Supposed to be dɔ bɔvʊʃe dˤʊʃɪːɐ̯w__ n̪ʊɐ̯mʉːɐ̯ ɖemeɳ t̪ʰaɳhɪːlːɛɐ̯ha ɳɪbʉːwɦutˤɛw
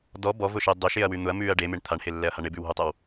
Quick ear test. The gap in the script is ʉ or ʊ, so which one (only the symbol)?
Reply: ʉ